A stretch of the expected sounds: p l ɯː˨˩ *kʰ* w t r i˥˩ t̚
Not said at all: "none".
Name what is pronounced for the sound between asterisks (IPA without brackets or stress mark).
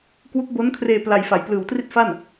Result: none